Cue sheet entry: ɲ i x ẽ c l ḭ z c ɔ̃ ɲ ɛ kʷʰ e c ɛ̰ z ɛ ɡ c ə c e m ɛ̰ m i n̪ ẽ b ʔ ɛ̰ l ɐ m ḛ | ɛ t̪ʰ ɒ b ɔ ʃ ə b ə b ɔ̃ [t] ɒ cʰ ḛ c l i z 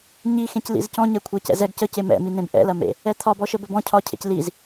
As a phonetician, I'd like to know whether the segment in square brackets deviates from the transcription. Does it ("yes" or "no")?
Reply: yes